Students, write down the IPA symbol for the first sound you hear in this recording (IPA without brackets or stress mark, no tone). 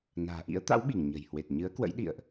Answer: n